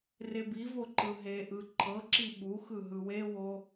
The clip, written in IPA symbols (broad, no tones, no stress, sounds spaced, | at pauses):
r e b i v o ǃ ɯ ɦ e ʔ ɯ ǃʰ ɤ ǁ i ɓ u x ɯ ɦ ɯ w e w o